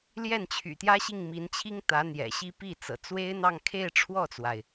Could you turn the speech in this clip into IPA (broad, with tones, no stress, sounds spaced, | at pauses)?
l j ɛ˥˩ n t͡ɕʰ y̰˨˩ t̪ j ä˥ ɕ i˥˩ ŋ m i˧˥ n t͡ɕʰ i˥ ŋ t̪ ä˧˥ n̪ j ɛ̰˨˩ ɕ i˥˧ p i˥˩ t͡s ɤ̰˨˩ t͡s w e˥ ɪ̯ n̪ ɑ˥˧ ŋ kʰ e˥˧ ɪ̯ ʈ͡ʂʰ w ɔ˥˩ t͡s w a˩ ɪ̯